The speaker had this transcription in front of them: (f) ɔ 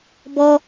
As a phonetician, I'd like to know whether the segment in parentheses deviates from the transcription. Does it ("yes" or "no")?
yes